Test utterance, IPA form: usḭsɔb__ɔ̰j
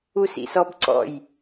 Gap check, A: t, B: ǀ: B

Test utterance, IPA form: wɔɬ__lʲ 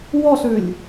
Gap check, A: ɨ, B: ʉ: B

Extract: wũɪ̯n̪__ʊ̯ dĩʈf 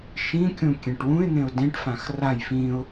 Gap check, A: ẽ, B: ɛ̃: A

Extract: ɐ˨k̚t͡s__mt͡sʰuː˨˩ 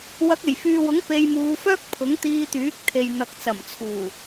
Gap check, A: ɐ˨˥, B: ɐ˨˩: B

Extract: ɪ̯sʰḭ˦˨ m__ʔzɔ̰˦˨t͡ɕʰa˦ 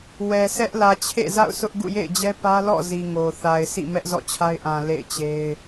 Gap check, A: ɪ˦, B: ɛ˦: B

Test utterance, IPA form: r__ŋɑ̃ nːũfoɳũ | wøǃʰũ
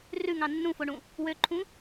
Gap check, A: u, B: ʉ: B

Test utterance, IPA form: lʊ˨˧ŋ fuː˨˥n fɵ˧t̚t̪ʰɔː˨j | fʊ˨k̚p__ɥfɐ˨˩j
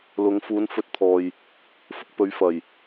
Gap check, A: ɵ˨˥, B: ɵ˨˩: A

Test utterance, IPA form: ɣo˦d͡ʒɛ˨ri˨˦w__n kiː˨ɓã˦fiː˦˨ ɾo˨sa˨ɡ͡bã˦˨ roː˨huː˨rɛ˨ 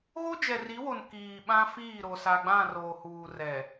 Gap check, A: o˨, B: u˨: A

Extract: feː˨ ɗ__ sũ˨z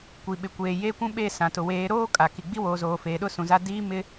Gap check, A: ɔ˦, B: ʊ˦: B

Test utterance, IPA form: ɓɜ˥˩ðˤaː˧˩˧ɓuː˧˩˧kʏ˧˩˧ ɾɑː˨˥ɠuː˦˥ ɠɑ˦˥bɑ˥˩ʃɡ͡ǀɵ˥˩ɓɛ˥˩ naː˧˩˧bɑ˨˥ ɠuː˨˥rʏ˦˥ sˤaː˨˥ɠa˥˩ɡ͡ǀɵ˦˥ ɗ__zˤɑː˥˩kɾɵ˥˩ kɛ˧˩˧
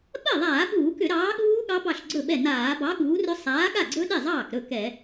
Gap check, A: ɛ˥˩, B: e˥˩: B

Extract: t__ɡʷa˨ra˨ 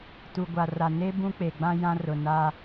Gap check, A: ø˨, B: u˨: B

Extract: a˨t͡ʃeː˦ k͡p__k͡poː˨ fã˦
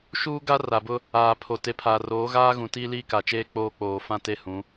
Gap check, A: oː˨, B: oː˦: B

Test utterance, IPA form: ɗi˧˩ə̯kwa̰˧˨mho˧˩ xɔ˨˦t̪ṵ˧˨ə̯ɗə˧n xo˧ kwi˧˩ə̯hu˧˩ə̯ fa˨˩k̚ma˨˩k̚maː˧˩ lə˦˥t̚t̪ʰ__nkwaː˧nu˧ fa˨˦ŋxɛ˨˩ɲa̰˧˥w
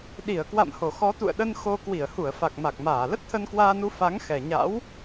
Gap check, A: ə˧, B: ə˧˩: A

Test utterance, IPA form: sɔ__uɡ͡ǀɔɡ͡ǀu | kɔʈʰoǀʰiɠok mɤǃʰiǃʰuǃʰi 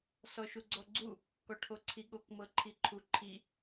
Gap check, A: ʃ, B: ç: A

